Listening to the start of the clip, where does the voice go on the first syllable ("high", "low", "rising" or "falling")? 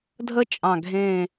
high